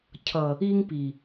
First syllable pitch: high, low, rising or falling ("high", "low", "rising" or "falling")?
low